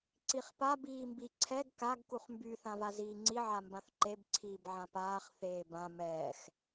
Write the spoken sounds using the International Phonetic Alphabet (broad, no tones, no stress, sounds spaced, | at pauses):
ǀ i χ p a b iː m b i ǀʰ ɛ ɡ k a ɡ k u χ m b y θ ã v a z iː ŋ͡ǀ i ʕ a m b ã θ ǃ e b ǀʰ iː b ʕ ã p aː χ θ eː b ã m ɛː x